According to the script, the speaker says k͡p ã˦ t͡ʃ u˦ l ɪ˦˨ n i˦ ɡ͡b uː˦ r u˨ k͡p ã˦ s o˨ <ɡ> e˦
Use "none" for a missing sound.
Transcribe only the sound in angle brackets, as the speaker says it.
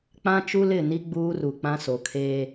kʰ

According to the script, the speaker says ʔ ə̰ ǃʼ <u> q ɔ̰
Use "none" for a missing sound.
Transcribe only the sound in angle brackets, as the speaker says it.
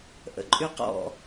y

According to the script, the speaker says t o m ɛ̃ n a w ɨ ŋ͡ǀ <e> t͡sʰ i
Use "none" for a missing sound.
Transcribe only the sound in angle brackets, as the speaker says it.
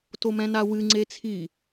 e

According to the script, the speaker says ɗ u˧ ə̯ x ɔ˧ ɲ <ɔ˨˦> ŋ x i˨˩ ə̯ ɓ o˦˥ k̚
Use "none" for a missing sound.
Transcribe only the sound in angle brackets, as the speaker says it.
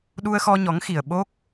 ɔ˨˦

